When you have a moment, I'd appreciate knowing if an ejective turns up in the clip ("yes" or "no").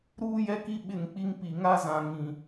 no